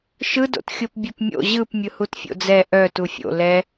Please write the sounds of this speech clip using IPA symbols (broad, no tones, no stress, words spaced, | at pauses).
ʃɯdo̰t xʲopbʲœpmʲo̰ ʑɯp mʲɯhutfʲo̰d͡zɛ ʔœ tufʲo̰ lɛ